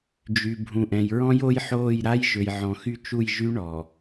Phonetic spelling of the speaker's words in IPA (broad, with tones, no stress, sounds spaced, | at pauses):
d͡ʒ y˨ bʱ ũ˨ ʔ ɛ̃˨ j ɹ ɔ̃˦ j o˦ j ħ oː˦˨ j ɾ a˦ j ʒ ø˨ j ʕ ɔ̃˨ x y˦ t͡ʃ u˦˨ j ʒ y˦ ɳ ɔ˨